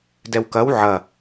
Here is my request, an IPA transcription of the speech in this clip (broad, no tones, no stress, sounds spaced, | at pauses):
d ɛ w k ɐ w ʕ ɐ